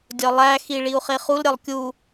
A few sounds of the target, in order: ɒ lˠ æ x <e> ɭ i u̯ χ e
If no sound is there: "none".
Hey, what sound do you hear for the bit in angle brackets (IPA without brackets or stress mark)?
i